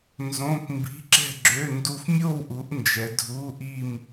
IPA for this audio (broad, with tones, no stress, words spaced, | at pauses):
nzõ˧˥˧p mbi̤˧˥˧ǁɛ̤˥˧ɡ͡ǁø˧˥˧ ndu˥˧f mʲo˥˧wʔu˨˦ʔ nd͡ʒɛ˨˦dʱu˧˥˧ʔi˥˧m